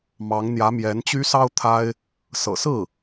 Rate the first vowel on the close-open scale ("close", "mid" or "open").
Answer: open